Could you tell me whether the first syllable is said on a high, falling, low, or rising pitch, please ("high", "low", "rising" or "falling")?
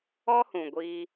high